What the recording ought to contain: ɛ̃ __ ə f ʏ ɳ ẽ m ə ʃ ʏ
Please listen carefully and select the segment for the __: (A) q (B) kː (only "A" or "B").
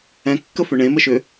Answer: B